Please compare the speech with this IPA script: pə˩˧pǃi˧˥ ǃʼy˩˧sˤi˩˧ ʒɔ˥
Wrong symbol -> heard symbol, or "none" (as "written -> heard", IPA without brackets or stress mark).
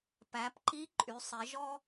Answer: ə˩˧ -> æ˩˧